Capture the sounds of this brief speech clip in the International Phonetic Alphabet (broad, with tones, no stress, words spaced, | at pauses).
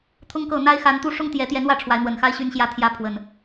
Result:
t̪ʰʊ˦ŋkɤ˥˨ n̪a˦ɪ̯xa˨˦nt̪u˦ ʂʊ˦ŋt̪jɛ˨˦t̪jɛ˨˦n wä˥˨ʈ͡ʂʰwa˨˦ɪ̯n̪wə˨˩nxa˦ɪ̯ ɕy˦nɕjä˥˨t̪ʰjä˦ pʰwə˨˩n